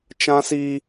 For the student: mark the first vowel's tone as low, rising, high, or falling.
high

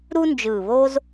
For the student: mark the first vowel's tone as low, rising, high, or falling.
high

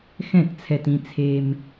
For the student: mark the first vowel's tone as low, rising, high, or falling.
falling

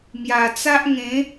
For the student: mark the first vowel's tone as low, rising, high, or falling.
low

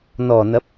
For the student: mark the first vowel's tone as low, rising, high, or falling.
low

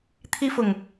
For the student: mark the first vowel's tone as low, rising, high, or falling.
high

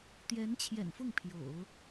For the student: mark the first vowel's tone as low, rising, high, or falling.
rising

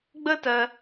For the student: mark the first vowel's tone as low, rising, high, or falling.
high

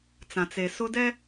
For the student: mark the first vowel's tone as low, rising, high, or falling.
low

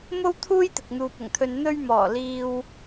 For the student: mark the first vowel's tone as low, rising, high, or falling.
high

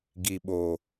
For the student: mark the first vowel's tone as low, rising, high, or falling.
low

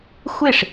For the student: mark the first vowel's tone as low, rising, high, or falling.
falling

